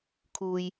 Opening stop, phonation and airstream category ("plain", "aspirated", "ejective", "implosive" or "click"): aspirated